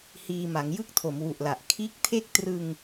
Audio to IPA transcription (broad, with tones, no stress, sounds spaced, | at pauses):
h iː˧ m a˩˦ ŋ j ɯ˥˩ k̚ tʰ o˩˦ m w u˨˩ ʔ l a˨˩ ʔ kʰ iː˦˥ k̚ tʰ e˥˩ k̚ t r ɯ˧ ŋ